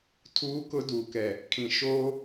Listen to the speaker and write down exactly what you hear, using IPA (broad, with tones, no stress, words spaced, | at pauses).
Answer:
tʰuː˦kʊ˦ du˨kɛ˨ | kʰĩ˨ʃoː˦